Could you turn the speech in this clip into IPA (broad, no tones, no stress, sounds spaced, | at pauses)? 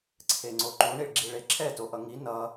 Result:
ǀʰ e ŋ͡ǀ o ǃ u ɳ i ɭ ɡ͡ǁ i ɭ e ǁʰ ɛ t o ʔ ʌ ŋ i n ʌ